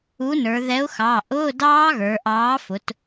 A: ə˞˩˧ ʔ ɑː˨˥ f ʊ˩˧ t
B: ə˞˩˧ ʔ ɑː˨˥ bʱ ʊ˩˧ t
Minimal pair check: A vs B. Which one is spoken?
A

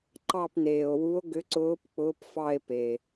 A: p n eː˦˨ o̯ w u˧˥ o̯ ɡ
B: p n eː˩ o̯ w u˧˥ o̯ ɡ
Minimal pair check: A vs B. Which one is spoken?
B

